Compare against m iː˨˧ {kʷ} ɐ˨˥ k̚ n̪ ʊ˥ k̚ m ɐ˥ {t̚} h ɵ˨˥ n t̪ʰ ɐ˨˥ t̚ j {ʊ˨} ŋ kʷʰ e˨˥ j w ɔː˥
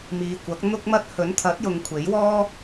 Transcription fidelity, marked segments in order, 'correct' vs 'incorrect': correct, correct, correct

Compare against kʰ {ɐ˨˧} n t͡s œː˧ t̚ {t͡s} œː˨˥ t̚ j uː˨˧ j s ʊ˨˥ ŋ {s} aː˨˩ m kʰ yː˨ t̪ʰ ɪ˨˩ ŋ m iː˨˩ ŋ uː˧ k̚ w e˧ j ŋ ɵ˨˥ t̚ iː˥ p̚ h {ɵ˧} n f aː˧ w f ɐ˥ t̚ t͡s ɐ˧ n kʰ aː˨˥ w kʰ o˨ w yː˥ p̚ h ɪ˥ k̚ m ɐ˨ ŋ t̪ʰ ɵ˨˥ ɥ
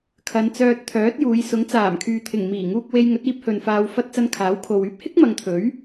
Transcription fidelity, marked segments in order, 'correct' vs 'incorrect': correct, incorrect, incorrect, incorrect

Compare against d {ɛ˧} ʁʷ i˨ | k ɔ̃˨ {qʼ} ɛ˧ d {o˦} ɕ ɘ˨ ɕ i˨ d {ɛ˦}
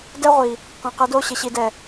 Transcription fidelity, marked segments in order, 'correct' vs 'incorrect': incorrect, incorrect, incorrect, incorrect

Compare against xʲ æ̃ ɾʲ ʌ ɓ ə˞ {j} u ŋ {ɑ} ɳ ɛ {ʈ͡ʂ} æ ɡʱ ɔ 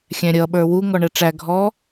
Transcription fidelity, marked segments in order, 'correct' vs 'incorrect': incorrect, incorrect, correct

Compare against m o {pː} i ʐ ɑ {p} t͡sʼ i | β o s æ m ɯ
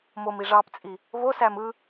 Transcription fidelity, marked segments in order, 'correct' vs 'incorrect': incorrect, correct

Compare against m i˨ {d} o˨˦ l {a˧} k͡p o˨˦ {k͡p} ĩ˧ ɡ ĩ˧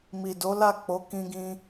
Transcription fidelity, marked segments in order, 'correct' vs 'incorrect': correct, incorrect, incorrect

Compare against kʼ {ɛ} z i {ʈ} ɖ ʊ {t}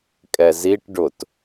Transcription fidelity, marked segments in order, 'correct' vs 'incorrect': correct, correct, correct

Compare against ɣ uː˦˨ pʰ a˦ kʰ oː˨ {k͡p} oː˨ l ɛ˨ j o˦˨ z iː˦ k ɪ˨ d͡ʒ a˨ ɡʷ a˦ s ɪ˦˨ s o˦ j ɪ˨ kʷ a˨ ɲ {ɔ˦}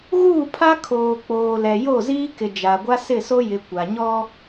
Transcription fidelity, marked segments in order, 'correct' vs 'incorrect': correct, correct

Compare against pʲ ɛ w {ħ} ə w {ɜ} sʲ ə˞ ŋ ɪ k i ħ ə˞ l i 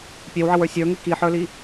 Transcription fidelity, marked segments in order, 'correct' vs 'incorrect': incorrect, incorrect

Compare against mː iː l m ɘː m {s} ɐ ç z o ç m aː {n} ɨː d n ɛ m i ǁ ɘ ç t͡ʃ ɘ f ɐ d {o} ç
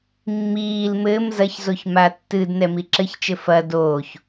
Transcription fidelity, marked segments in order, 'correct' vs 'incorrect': incorrect, incorrect, incorrect

